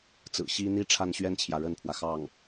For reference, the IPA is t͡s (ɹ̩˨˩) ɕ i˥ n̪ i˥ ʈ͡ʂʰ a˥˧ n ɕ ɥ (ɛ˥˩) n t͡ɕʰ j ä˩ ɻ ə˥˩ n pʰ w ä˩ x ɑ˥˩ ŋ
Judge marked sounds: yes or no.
yes, yes

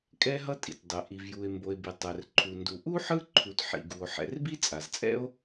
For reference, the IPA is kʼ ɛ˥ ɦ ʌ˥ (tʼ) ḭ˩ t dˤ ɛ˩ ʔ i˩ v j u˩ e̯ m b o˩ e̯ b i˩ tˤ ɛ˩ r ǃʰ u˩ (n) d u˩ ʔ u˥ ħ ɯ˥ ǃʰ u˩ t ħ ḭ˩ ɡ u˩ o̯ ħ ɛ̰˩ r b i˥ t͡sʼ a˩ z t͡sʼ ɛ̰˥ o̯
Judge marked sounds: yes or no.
yes, yes

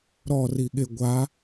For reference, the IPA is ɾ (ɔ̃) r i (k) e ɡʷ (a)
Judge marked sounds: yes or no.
no, no, yes

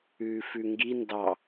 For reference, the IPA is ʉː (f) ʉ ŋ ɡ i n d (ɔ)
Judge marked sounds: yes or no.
yes, no

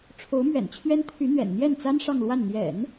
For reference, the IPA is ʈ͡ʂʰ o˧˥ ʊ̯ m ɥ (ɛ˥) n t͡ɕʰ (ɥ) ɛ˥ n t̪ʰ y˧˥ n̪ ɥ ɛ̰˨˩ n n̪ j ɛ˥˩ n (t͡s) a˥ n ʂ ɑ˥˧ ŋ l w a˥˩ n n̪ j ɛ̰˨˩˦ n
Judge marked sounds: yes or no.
no, yes, yes

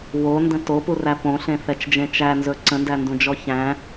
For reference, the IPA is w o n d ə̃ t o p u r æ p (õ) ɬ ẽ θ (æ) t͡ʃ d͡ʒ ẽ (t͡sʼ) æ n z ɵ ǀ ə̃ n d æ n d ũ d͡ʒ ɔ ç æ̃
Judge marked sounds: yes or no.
yes, no, no

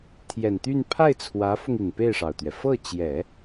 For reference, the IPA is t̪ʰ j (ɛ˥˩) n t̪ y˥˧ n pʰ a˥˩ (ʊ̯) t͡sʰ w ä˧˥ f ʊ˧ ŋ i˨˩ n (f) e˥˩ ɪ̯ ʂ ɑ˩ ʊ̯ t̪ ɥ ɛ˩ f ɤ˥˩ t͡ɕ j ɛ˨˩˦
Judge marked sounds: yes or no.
no, no, no

